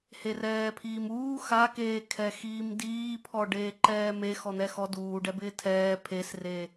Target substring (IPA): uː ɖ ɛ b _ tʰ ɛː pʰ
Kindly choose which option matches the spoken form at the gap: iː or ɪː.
ɪː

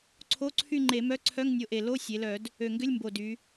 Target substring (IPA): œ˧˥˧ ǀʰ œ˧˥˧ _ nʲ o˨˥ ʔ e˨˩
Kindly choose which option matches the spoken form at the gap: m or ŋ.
ŋ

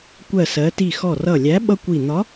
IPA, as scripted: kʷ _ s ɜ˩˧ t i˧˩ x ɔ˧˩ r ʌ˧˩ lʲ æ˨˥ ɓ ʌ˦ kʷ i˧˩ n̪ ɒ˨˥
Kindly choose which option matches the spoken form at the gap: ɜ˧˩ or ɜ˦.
ɜ˧˩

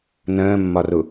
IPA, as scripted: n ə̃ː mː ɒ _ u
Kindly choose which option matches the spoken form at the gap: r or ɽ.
r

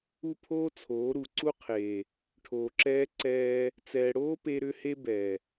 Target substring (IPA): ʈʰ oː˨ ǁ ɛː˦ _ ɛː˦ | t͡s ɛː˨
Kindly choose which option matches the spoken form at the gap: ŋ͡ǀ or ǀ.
ǀ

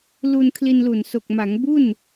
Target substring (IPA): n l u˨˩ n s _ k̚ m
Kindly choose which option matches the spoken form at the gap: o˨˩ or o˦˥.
o˨˩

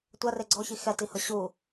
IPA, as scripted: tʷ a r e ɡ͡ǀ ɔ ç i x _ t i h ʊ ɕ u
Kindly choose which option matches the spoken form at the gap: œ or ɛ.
ɛ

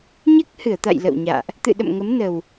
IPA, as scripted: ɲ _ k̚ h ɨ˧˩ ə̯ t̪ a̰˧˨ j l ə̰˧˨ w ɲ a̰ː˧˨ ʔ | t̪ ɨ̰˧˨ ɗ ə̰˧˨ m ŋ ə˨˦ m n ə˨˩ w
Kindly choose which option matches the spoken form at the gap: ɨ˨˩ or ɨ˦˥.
ɨ˦˥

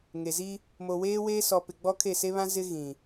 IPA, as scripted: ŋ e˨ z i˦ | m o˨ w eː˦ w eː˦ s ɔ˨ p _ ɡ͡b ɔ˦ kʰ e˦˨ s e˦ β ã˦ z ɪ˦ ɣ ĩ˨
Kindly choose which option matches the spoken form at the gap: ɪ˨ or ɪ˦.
ɪ˨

